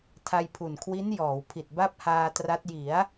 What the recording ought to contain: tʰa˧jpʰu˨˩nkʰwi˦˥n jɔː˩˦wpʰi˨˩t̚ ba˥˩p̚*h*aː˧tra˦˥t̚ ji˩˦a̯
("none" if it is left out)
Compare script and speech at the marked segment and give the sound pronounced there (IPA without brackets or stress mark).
h